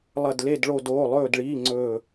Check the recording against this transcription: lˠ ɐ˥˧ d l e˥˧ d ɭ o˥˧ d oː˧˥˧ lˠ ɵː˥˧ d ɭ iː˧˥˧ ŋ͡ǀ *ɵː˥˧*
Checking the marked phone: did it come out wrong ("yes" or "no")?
no